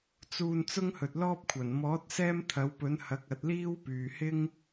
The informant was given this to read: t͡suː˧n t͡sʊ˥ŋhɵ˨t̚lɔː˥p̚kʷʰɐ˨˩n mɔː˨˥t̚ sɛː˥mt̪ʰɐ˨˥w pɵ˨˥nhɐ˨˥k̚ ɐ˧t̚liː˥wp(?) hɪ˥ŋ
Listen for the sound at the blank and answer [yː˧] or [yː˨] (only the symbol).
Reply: yː˨